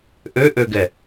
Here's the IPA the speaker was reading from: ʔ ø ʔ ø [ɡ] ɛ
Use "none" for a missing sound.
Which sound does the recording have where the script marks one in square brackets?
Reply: ɡ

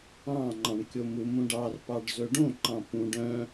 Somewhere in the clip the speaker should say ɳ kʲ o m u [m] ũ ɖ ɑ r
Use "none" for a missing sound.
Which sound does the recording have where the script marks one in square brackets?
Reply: m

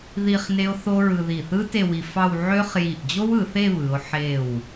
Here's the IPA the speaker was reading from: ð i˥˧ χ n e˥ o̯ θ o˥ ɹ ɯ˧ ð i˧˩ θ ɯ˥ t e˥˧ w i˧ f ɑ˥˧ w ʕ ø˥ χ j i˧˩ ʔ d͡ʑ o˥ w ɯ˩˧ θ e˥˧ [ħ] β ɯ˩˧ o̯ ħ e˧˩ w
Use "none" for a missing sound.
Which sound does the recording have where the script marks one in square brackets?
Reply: none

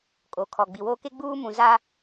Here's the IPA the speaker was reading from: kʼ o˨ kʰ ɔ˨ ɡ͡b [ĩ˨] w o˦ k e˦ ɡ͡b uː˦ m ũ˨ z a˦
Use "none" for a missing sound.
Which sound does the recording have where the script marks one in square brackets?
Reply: i˨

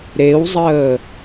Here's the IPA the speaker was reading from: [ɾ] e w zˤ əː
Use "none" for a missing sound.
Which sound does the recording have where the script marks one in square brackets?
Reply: ɾ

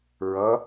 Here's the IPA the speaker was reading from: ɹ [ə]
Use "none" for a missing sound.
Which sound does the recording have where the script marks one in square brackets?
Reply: ʌ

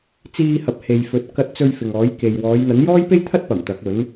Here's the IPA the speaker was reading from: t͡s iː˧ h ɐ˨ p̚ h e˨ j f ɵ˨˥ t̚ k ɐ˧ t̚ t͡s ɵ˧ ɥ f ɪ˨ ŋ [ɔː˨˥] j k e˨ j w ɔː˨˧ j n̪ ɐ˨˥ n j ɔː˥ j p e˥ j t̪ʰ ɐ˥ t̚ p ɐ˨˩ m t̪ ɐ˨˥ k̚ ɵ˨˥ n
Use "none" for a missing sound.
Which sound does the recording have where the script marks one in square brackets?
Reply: ɔː˨˥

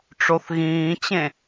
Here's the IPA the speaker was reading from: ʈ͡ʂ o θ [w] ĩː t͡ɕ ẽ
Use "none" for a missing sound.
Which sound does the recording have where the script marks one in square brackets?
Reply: ɣ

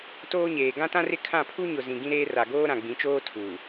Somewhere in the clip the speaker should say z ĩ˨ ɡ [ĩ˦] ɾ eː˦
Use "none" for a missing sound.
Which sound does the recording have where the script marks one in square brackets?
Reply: ĩ˦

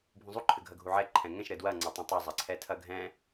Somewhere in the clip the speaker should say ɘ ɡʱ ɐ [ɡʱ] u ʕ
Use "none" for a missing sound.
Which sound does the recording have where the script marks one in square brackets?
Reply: ɡʱ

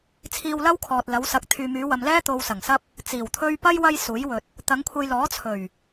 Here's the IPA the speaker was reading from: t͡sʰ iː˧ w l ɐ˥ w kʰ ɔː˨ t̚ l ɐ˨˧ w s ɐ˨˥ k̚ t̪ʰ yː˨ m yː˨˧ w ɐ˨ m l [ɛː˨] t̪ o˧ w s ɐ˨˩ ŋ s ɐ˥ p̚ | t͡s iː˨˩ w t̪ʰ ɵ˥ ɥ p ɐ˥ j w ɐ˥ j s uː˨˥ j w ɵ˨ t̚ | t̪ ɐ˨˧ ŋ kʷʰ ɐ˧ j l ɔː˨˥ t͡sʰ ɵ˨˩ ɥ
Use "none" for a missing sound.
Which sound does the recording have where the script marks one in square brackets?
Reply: ɛː˥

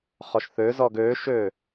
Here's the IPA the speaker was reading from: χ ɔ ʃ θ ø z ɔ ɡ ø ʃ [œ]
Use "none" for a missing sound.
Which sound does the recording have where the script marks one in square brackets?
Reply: ø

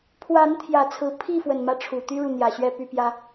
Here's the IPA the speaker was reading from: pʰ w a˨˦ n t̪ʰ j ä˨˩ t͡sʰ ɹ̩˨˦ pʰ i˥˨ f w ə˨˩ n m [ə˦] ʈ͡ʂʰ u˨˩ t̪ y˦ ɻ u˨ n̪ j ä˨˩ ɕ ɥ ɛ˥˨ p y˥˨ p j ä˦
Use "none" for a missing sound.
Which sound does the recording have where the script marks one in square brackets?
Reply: ä˦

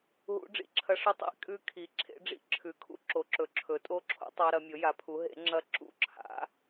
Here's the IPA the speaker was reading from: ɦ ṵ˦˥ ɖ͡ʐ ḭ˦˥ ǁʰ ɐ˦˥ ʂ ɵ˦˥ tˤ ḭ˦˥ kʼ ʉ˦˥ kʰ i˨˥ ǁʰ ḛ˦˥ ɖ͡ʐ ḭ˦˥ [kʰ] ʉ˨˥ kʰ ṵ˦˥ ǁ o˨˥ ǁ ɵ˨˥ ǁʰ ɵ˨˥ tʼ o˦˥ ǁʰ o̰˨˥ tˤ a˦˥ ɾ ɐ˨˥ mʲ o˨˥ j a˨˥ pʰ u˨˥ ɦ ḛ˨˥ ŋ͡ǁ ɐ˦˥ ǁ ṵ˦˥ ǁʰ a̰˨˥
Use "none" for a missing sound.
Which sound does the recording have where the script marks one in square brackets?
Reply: ǁʰ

